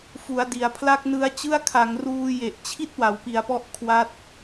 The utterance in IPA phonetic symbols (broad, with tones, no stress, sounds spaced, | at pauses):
f u˩˦ a̯ d i˩˦ a̯ pʰ l a˥˩ k̚ n ɯ˦˥ a̯ t͡ɕ ɯ˥˩ a̯ kʰ a˩˦ ŋ r uː˧ j e˨˩ ʔ t͡ɕʰ i˥˩ t̚ w a˩˦ w p i˨˩ a̯ p ɔ˦˥ ʔ kʰ w a˦˥ t̚